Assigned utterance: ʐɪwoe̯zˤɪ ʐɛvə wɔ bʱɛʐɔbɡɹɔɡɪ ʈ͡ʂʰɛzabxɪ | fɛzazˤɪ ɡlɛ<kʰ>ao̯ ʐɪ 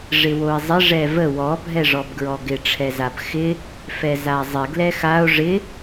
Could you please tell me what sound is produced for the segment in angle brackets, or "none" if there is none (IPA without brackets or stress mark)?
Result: x